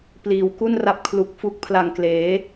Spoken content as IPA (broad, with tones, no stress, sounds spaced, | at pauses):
p l iː˩˦ w k u˥˩ n r a˦˥ p̚ kʰ l u˨˩ k̚ f u˦˥ k̚ pʰ l a˨˩ ŋ k l eː˩˦